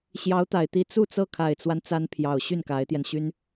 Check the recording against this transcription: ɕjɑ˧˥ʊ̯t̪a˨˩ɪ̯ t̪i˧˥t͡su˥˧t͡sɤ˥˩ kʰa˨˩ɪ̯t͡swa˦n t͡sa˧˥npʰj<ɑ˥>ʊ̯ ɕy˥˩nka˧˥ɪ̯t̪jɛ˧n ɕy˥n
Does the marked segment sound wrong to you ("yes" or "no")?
yes